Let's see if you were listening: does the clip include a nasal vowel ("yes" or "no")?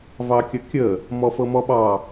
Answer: no